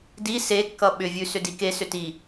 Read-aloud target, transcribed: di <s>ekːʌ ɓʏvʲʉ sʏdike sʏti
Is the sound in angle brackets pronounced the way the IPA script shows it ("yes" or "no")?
yes